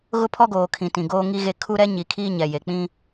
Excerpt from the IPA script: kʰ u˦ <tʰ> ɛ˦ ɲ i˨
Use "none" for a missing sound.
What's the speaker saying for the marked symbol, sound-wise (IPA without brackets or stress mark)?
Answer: ɾ